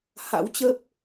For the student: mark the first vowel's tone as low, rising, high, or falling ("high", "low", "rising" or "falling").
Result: rising